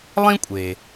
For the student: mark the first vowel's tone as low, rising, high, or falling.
high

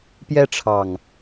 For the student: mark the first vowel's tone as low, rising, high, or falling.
high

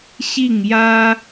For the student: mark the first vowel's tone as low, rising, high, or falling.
falling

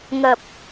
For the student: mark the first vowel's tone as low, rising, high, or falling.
low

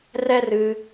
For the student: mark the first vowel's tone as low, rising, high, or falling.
high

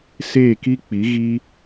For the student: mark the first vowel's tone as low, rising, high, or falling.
falling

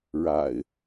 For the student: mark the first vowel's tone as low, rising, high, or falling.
low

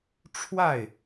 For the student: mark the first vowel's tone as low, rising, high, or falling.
falling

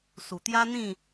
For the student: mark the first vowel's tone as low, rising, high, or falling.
low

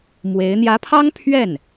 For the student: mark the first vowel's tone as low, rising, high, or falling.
rising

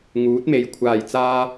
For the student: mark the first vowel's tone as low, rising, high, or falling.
rising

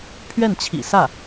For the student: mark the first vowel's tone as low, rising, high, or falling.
falling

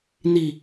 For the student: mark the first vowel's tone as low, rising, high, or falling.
low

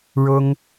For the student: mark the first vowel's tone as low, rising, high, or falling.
high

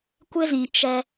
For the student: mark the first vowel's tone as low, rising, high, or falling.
high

